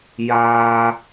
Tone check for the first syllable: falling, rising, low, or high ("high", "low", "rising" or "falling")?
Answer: high